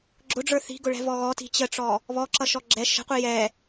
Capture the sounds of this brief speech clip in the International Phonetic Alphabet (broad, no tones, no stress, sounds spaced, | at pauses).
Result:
ɡ͡ǁ ʊ ɖ͡ʐ ə˞ θ i̤ ɡ ʊ ɭ ɛ̤ v ɔ ɣ ɔ t i̤ t͡ɕ ə ʈ͡ʂ ɔ | β ɔ ǁ ʌ ʃ ɔ ɡ͡ǁ ɛ ʃ ə̤ qʷ i j ɛ